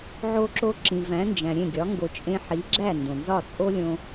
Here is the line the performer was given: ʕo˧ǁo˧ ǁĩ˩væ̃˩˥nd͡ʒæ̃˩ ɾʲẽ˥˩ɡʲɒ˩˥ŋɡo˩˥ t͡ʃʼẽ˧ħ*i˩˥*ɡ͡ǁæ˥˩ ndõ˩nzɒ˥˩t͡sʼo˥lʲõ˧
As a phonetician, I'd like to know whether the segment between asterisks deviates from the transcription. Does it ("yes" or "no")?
no